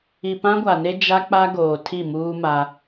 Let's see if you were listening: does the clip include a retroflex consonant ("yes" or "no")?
no